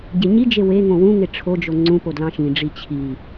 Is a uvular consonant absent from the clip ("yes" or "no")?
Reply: yes